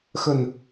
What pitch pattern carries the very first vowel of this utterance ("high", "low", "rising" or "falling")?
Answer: low